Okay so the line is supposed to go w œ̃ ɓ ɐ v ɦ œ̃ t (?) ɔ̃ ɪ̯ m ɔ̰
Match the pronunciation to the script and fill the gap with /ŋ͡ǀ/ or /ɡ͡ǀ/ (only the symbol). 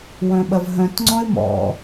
ŋ͡ǀ